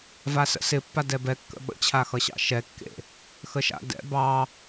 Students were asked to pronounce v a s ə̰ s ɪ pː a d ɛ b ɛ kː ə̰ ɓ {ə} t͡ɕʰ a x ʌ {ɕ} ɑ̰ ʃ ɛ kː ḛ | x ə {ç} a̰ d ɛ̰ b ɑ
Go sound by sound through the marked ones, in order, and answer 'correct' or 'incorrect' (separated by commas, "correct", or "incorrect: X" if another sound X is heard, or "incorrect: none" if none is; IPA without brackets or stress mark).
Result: incorrect: ə̰, correct, incorrect: ʃ